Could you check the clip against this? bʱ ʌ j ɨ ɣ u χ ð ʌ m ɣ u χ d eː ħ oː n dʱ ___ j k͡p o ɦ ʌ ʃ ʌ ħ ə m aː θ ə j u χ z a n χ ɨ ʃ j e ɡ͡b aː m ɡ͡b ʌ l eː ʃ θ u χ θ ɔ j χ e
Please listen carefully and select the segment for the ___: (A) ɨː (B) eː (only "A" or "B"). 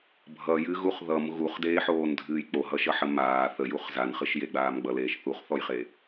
A